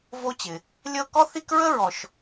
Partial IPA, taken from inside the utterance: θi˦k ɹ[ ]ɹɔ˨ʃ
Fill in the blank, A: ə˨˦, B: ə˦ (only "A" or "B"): B